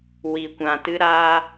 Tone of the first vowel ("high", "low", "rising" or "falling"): low